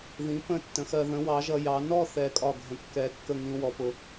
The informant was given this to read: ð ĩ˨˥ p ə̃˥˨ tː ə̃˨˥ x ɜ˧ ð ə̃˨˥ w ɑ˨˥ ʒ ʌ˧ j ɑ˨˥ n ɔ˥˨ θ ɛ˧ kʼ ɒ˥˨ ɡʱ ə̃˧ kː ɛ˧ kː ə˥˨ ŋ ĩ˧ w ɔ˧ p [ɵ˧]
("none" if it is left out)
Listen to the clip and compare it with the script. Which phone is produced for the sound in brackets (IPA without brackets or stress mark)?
ʊ˧